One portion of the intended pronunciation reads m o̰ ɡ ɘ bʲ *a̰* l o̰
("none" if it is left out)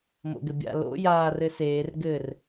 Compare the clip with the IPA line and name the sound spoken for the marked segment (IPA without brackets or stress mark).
a̰